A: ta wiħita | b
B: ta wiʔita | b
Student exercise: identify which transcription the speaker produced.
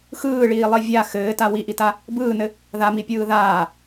B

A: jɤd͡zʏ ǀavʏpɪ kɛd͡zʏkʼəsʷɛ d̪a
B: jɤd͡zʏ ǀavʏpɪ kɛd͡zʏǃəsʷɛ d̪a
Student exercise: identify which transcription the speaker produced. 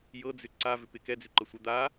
B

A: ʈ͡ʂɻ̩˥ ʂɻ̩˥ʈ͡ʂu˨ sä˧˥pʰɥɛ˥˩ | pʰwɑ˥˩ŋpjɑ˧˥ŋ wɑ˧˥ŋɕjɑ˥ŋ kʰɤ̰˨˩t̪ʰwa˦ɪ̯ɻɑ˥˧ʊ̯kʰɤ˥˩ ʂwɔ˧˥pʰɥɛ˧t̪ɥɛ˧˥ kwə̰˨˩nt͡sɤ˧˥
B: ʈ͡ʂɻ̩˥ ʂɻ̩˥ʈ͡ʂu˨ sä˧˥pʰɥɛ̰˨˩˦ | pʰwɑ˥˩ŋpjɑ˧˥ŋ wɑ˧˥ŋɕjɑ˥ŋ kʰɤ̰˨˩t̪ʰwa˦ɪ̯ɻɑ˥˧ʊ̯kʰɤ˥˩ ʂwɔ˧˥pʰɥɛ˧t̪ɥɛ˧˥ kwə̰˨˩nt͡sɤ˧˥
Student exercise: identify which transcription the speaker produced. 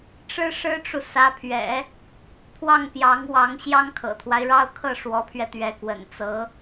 B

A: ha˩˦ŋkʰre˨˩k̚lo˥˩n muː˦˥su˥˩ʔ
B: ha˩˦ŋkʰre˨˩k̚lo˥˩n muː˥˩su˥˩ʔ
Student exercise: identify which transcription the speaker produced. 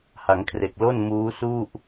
A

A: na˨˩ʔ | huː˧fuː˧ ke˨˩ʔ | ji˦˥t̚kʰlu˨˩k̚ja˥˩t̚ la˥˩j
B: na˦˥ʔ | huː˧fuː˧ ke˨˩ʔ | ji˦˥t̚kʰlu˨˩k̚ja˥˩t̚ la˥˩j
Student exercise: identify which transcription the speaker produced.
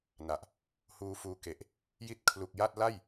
A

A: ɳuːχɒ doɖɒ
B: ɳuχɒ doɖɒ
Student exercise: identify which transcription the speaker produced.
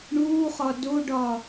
A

